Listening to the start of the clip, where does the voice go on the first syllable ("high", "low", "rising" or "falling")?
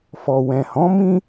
low